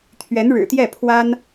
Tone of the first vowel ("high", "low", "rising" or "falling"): rising